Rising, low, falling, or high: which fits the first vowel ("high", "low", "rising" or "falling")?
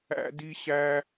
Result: high